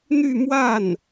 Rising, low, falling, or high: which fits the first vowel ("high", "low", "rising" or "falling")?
falling